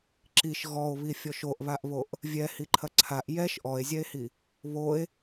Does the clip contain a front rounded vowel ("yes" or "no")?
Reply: no